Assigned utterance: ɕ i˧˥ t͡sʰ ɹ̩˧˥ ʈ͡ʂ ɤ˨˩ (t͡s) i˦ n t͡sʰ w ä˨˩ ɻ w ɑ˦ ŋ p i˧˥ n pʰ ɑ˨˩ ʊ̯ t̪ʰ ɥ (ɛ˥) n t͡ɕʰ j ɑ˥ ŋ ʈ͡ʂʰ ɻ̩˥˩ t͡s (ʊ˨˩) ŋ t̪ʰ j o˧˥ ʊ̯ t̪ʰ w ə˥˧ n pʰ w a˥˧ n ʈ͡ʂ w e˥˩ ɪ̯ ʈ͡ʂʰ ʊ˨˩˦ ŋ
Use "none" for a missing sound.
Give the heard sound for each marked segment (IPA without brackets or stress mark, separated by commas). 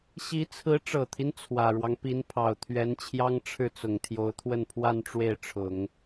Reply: t̪ʰ, ɛ˧˥, ʊ˨˩